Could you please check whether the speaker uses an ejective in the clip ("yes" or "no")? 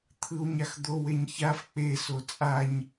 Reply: yes